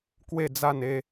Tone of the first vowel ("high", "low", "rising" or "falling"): falling